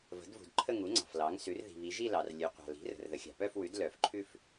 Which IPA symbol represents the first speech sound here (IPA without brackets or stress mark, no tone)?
v